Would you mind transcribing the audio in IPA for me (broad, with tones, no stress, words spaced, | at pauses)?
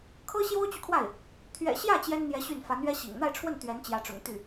kʰɤ˥ɕjo˥ʊ̯t͡ɕy˨kʰwa˥˩ɪ̯ | t̪ʰɥɛ̰˨˩ɕjä˥˩ t͡ɕjɛ˥nn̪jɛ˧˥ ɕy˥˩n fa˧˥nɥɛ˥ɕḭ˨˩ŋ n̪a˥˧ɪ̯ʈ͡ʂʰwə˥˩n t̪ɥɛ˧˥nt͡ɕjä˧˥ʈ͡ʂʊ̰˨˩ŋ t̪y˥˩